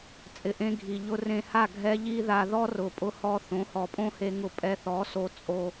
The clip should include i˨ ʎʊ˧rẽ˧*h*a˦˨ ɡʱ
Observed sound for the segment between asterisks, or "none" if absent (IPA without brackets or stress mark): h